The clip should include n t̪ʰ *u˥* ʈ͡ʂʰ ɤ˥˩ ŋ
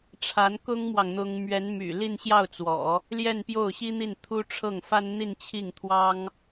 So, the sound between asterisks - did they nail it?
yes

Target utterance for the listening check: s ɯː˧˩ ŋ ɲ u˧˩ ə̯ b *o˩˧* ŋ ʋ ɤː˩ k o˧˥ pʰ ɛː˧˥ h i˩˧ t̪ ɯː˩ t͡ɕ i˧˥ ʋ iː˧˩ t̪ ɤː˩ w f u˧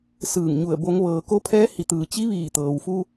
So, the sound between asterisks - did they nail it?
yes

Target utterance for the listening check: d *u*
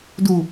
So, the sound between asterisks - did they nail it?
yes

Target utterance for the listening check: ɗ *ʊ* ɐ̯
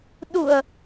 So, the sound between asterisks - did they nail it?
yes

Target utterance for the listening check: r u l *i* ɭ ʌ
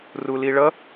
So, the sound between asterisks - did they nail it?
yes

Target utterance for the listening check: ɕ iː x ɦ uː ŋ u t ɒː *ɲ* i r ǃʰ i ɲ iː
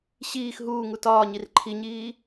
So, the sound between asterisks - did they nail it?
yes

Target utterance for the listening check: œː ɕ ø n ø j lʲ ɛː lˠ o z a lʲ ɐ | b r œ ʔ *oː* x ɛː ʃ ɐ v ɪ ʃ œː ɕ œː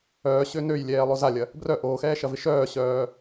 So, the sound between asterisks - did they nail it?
yes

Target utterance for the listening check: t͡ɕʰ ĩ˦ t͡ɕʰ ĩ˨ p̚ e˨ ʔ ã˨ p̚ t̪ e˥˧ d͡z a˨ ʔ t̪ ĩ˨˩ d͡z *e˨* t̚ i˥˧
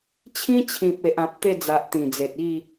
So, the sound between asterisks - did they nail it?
yes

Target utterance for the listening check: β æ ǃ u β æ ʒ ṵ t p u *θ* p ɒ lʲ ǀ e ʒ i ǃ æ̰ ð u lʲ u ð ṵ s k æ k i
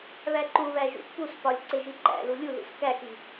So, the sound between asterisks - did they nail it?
no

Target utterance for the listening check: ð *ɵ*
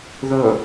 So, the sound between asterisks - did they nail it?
yes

